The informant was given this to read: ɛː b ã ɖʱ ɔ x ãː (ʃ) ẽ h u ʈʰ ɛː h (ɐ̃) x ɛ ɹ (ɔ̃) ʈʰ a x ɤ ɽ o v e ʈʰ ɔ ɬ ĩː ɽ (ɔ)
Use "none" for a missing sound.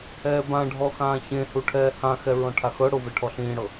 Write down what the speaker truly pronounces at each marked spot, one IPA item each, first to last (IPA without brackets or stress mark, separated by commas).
ç, ã, ɔ̃, ɤ